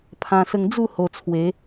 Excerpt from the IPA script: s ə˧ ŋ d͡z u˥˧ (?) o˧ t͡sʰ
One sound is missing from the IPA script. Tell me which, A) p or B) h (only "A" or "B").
B